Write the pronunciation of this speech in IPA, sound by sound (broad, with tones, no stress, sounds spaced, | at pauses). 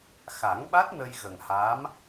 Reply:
x a˨˩˦ ŋ ɓ a˦˥ t̚ n ə˧ j ɣ ə˨˩ ŋ h aː˧˥ m